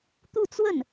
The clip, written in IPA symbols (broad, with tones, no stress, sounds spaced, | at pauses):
t̪ u˥˧ t͡s w ə˥˩ n